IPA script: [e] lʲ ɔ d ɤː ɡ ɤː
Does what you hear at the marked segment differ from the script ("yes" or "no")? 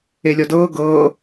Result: no